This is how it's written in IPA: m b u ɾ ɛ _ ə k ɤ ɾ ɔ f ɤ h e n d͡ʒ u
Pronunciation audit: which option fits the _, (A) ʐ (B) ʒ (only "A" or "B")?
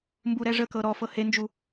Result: A